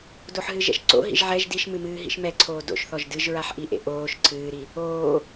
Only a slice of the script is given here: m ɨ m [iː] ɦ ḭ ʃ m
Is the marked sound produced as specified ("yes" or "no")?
no